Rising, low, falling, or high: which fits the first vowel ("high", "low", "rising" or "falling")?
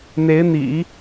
rising